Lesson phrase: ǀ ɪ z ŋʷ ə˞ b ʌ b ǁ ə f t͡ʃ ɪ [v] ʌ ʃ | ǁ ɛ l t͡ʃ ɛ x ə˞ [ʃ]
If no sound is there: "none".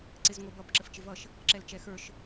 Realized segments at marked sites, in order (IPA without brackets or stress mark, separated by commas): v, ʃ